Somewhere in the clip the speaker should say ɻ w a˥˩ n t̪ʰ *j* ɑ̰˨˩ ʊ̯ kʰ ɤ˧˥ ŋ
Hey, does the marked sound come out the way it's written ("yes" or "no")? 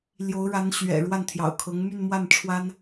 yes